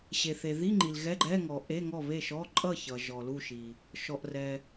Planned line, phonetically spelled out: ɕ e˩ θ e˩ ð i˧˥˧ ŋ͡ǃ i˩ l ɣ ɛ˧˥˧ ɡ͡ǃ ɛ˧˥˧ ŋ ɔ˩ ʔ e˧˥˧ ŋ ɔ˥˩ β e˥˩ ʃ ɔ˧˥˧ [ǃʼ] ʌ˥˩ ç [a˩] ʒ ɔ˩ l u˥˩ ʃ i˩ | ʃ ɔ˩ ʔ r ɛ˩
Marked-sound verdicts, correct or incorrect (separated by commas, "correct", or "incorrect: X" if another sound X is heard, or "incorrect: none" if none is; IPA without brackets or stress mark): correct, incorrect: ʌ˩